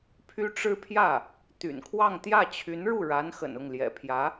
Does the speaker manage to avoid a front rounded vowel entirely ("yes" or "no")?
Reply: no